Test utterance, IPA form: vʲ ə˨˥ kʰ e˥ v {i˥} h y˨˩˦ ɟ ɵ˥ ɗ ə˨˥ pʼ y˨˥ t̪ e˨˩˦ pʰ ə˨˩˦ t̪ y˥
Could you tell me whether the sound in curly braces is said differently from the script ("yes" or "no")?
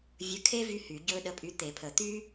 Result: yes